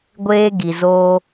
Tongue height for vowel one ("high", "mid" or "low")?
mid